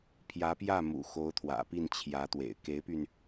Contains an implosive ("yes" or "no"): no